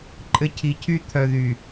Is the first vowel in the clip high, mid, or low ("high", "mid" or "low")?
mid